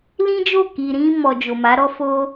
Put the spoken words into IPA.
lĩ˦d͡ʒo˦˨ ki˨ ɾĩ˧mɔ˨ d͡ʒo˨ma˨˦ɾɔ˦ fo˦

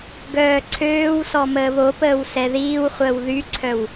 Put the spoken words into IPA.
ɡœːǀʰøːwsɔ məːβopəːw sɛðiːwχʷəːw ðyǀʰœw

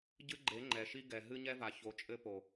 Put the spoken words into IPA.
ɟɨ˦ɡ͡ǃe˨˦ ŋ͡ǃɛ˨ʃi˦ɡɛ˨ ɦɨ˦ɲɛ˦va˨ço˨˦ t͡ʃʼɘ˦po˨

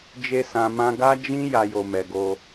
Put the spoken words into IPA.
d͡ʒe˧sã˨mã˧ ɡa˦d͡ʒĩ˦ ja˧jo˨ mɛ˨ɡo˧

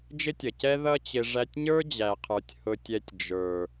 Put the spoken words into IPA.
d͡ʒɪ˦tʲʌ˨cɛ˦ ðʌ˦t͡ɕɪ˧ ʐæ˧tʲɲə˞˦d͡ʑæ˨qʰə˞˨tʲ hʊ˨tʲɛ˨tʲ d͡ʒə˞˨

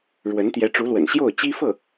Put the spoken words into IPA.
ɻwə˧˥n t̪jɛ˧˥ʈ͡ʂu˧˥lwə̰˨˩n ɕjo˥˩ʊ̯t͡ɕi˥fɤ˥˩

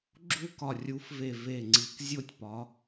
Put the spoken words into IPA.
ɡ͡ǁu˥˨kɒ˧˩ rʲu˨˦fve˧˩ ve˧˩ŋ͡ǀi˨˦kzʲo˥˨tʲpɒ˨˦

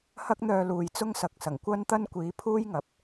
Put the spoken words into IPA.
hɐ˥k̚n̪œː˧luː˨j t͡sʊ˥ŋsɐ˨k̚sɐ˨˩ŋ kʷɐ˥nt̪ɐ˥n kʷiː˨˥pʰuː˥jŋɐ˨p̚

